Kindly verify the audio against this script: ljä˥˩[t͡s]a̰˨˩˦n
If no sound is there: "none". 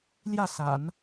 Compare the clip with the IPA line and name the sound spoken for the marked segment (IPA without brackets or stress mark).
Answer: s